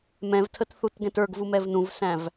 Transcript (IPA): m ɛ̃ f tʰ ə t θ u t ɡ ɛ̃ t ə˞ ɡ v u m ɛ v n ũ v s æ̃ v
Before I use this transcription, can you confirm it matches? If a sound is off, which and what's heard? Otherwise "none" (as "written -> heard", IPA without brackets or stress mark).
f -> v